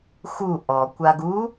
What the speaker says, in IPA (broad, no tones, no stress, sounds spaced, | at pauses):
x u ʔ ɔ kʷ a ɡ u